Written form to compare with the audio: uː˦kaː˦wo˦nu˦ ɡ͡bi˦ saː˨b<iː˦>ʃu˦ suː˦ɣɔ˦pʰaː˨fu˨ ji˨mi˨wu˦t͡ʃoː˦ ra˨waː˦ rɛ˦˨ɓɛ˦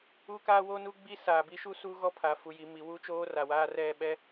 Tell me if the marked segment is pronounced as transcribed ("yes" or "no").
no